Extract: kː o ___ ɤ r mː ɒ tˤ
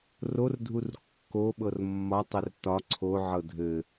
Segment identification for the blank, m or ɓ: ɓ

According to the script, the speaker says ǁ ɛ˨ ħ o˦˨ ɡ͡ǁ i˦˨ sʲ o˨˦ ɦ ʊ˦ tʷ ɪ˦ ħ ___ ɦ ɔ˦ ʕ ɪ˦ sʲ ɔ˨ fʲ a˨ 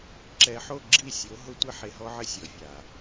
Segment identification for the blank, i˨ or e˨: e˨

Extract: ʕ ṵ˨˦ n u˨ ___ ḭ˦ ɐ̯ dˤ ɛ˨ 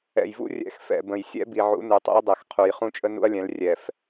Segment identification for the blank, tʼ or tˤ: tˤ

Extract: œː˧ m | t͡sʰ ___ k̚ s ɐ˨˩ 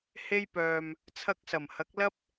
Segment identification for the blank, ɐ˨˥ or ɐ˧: ɐ˧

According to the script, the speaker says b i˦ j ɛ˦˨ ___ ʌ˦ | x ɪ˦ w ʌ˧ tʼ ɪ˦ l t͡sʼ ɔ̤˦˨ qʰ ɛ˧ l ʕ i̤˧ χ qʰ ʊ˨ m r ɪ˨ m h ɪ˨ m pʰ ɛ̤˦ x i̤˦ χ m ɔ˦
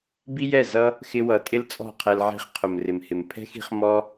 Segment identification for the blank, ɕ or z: z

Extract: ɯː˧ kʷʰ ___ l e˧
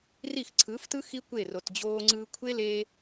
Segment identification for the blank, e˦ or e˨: e˦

